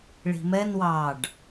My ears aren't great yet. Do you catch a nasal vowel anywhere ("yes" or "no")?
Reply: no